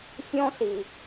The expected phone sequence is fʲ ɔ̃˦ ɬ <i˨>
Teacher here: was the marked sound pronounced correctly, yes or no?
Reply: yes